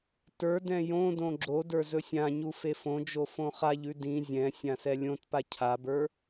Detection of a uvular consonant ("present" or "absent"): present